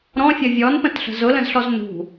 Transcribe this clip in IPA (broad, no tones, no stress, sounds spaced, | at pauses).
ɾ ɔ̃ fʲ ʌ vʲ ɔ n p ə̃ t ɬ ə̤ z ʊ l ə̃ z ɬ ɔ z n ṳ